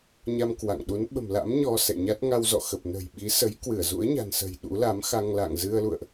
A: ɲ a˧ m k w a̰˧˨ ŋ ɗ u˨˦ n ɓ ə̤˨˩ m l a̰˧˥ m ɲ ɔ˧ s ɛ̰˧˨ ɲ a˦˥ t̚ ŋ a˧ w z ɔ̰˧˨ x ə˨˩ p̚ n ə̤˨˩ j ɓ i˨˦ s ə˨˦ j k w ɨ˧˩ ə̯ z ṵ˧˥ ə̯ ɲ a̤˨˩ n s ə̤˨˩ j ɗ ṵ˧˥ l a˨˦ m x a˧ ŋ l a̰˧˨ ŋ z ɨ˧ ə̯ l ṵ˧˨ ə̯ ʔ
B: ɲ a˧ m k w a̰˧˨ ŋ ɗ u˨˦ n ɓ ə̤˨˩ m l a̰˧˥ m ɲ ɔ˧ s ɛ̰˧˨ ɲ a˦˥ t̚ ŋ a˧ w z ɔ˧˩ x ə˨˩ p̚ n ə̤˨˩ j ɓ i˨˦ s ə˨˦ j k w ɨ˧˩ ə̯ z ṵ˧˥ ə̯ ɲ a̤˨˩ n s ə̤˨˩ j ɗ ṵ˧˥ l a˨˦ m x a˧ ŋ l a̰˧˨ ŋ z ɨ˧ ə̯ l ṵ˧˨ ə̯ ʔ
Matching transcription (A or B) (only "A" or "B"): A